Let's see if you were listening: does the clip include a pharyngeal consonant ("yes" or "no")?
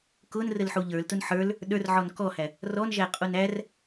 yes